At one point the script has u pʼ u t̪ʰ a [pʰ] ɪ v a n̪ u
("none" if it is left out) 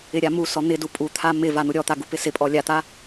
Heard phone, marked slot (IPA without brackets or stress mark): m